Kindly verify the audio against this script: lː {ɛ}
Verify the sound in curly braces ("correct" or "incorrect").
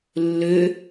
incorrect